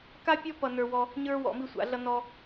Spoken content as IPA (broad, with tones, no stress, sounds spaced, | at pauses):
k a˥ pʲ ɔ˥ p ʌ˥ n ə˞˥ w ɔ˥ | ɲ ə˞˥ w ɔ̰˧˥ m i˥ sʷ a̰˧˥ ɮ ʌ˥ n ɔ˥